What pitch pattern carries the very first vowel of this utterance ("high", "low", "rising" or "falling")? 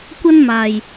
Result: high